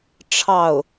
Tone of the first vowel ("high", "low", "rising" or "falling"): falling